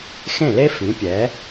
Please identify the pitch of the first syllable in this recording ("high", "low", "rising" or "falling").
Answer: falling